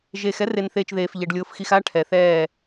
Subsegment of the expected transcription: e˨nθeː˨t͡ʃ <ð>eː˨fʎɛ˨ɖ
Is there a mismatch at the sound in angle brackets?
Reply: no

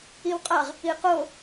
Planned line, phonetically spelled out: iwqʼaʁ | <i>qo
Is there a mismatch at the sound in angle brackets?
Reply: no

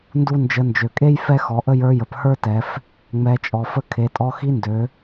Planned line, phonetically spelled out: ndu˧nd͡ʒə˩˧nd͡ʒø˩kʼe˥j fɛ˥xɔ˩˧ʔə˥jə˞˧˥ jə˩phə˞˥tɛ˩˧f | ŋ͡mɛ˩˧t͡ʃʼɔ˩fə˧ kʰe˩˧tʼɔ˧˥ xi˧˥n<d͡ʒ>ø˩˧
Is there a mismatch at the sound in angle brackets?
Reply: yes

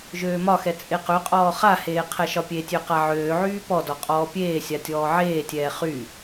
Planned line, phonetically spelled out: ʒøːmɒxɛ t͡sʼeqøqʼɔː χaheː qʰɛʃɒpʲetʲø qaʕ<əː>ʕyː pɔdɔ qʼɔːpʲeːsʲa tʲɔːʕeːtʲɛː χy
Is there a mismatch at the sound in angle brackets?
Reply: yes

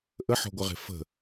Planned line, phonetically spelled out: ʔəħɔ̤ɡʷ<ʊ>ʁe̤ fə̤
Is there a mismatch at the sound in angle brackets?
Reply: yes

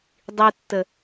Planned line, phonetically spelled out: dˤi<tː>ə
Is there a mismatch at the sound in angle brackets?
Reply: no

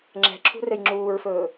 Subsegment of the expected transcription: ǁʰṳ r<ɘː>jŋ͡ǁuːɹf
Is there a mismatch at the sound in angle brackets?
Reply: yes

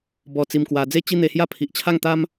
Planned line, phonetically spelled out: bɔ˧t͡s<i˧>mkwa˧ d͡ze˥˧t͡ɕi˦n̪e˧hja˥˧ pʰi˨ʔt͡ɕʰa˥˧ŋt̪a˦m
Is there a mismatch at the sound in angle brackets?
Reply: no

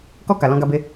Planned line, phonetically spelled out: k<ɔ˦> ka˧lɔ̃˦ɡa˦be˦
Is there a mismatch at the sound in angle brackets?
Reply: no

